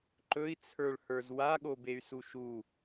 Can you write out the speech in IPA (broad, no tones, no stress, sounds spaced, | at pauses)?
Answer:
ǃ ɵ i̯ t͡sʰ ə˞ ɭ h ə˞ z w a ɠ o b e y̯ s u ʃ u